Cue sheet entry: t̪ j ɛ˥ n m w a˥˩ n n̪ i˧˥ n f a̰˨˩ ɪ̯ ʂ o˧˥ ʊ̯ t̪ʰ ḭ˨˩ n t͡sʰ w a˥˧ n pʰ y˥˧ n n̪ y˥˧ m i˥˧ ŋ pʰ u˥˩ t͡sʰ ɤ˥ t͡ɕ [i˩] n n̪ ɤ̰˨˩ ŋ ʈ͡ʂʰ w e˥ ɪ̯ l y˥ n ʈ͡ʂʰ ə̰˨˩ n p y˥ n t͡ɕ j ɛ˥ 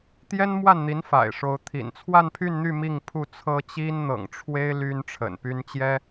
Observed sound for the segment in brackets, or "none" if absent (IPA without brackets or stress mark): i˥